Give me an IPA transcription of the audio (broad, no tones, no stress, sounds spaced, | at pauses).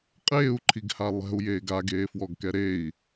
qʼ eː u̯ ǃʰ i ɡ h a lˠ ɛ̤ u̯ j eː ɡ a ɡ eː f w ɔ ɡ k ɛ ɾ e i̯